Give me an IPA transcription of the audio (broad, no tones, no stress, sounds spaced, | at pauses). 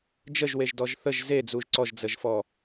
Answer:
d͡ʒ ə ʒ w e ʒ d ɔ ʒ θ ə ʒ z e d͡z u ʒ ǀ ɔ ʒ d͡z ə ʒ f ɔ